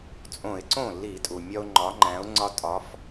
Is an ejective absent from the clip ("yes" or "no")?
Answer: no